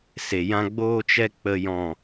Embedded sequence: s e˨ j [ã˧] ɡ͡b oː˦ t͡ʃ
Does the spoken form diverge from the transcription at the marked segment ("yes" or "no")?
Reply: yes